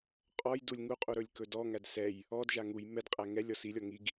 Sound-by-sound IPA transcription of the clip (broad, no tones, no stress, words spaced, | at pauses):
qʼɔjdulʲ ŋuqʼu ɾɵlʲkɵdɔŋæd sɛj | ɔdʒa ŋuj mɛdqʼæ ŋɛlʲ ɔsilʲɔ ŋiɡ